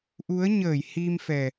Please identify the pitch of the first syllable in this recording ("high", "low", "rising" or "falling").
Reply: rising